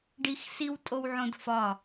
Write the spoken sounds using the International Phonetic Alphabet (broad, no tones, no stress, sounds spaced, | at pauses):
ɖ i x s i w tʼ o w ʕ õ d f ɒ